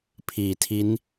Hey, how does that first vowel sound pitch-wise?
low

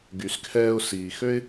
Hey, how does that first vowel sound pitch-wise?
low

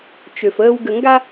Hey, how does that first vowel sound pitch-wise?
low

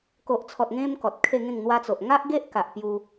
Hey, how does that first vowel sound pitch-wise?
low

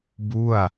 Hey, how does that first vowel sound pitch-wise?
falling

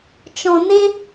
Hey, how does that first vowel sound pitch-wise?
low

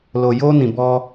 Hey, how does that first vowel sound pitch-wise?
low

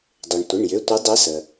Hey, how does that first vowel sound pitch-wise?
low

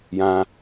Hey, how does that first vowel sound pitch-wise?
high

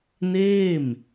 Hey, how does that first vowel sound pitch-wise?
falling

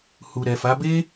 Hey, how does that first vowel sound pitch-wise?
low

